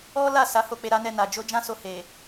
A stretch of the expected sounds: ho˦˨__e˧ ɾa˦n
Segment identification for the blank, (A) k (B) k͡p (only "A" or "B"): B